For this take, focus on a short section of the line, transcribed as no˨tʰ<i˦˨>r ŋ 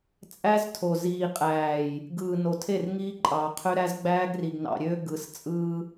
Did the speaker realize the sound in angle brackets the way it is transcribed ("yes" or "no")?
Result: no